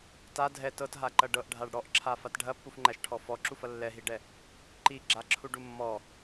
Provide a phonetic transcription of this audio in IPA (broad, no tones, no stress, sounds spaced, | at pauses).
t a dʱ ɛ t ɤ t ɦ a ǃ ɐ ɖ ɤ ʔ ɖʱ a ɖ ɽ ɔ ʔ ǁʰ a f a t ɖʱ ɐ pː u f ŋ͡ǃ æ ʃ ʈʰ ɔ f ɔ ǁ u f ɐ lː ɛ ɦ i ɖ ɛ | ǃ i ɡ͡ǁ a ǁʰ u ɖ u mː ɔ